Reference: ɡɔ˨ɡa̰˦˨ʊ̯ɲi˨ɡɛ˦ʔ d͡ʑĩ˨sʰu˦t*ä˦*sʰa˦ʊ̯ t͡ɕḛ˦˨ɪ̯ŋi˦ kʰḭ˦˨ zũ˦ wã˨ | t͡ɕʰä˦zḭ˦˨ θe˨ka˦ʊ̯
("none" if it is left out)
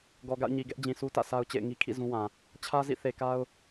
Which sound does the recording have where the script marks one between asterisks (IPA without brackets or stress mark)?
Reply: ä̰˦˨